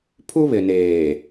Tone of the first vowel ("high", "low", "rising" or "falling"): high